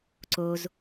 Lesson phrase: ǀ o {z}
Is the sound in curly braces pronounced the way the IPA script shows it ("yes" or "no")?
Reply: yes